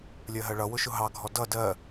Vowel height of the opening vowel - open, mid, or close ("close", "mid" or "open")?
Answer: mid